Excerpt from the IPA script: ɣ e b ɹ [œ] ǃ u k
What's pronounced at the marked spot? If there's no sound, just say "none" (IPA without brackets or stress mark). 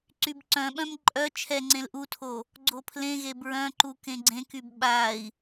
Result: œ̃